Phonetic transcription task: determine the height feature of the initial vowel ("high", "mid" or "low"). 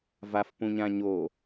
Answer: low